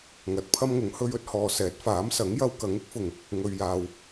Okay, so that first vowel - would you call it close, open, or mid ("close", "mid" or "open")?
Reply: open